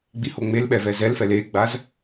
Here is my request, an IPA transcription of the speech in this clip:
ɡ͡b i h o ŋ͡m e l ɓ ɛ v ɛ z ɛ l f ɛ l e ɡ͡b a z

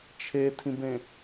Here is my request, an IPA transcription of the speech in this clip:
t͡ʃʰ e tʰ ĩ b ẽ

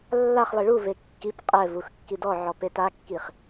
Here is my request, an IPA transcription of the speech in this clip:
lː a χ lˠ i ɭ u v e kː i p qʼ ɛ v u x kː i d ɔ ʕ ɔ p e t a kː i χ

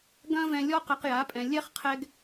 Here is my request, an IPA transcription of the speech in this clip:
ɡ ɐ̃˦ v ɛ̃˧ lʲ ɔ˦ q ɐ˧ q j a˨˦ pʼ ɛ̃˨ lʲ ɛ˦ χ qʰ ɛ˦ ɡ

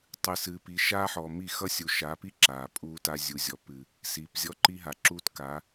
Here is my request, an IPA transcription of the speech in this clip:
tˤ ɨ˨ s ɨː˨ p i˨ ʃ aː˦ ħ ɔ˨ m i˦˨ x ʌ˦ sʲ u˨ ʃ a˨˦ p i˦ ǁ aː˨ pʼ uː˦ t a˦ zʲ u˨ zʲ ɔ˨ p ɨ˨ | s iː˨ p zʲ ɔ˦ ǃ i˦ ɦ a˨ ǁ uː˦ t k a˨˦

